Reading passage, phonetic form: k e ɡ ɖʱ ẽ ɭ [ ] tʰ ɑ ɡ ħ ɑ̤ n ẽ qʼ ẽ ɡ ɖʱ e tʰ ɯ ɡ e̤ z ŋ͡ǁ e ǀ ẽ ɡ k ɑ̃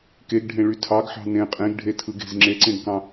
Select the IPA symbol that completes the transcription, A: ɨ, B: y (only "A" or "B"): B